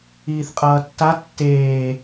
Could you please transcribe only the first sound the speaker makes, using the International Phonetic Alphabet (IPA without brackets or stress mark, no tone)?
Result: iː